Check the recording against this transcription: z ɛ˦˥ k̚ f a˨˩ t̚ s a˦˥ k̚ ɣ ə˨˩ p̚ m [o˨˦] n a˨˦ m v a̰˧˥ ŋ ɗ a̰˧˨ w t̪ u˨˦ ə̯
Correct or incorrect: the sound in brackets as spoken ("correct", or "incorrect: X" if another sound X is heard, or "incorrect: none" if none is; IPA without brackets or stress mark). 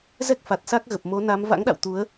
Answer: correct